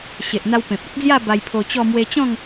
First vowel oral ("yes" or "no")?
yes